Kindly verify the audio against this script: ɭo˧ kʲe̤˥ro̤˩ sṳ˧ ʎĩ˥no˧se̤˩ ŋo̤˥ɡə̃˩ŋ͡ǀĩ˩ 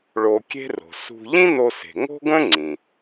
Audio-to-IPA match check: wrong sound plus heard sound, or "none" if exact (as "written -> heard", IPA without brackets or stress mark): ə̃˩ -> ə̃˥